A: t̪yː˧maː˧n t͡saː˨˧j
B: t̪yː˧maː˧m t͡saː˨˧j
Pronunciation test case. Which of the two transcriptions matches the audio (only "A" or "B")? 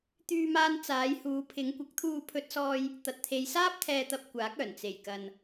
A